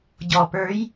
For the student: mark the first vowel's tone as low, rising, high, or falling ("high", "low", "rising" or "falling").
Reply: low